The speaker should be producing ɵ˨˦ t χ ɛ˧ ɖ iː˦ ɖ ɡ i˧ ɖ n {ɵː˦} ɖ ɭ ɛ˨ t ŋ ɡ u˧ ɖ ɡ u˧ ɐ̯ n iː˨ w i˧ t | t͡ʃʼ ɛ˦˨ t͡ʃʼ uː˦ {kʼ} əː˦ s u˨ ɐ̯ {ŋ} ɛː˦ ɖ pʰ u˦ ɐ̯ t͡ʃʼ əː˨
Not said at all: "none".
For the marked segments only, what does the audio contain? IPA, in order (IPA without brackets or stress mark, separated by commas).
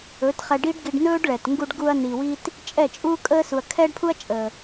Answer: ɵː˦, kʼ, kʰ